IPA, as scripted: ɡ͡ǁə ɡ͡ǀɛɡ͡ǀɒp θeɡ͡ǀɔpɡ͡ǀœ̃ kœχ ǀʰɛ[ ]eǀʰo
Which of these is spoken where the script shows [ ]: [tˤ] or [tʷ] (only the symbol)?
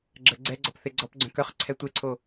tʷ